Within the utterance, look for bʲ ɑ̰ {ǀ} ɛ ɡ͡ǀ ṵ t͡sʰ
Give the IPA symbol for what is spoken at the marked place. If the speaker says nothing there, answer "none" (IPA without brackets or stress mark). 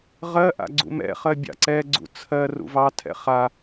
ǀ